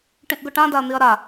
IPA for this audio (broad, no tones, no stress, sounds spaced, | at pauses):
ʈ ĩ ʔ ɡ ʊ ʈ ã d a ɐ̯ n̪ i ɐ̯ ɾ a